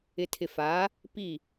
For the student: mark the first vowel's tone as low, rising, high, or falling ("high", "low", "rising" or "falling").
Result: low